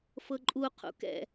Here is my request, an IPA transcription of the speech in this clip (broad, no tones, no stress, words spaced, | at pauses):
fɤǃʼuqʰṵ kɛ̰